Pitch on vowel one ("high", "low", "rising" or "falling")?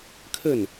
falling